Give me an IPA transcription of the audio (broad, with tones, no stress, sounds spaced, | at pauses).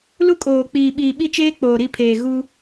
l u˦ kʼ oː˨ k͡p iː˨ ɓ iː˨ ɓ i˦ t͡ʃ eː˦ k͡p oː˨ ɾ i˦˨ pʰ eː˨ ɣ u˦